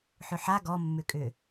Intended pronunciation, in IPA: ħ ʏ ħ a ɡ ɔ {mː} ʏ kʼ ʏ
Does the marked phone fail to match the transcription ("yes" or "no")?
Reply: no